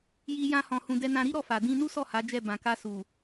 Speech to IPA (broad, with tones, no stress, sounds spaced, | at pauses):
j i˦ j ã˦ h ɔ̃˧ h ũ˧ d ɛ˧ n ã˧ ɾ i˦ ɾ ɔ˦˨ f a˨ d ĩ˧ n u˦ s ɔ˦˨ h a˨˦ d͡ʒ ɛ˦˨ b ã˨ k a˧ s u˨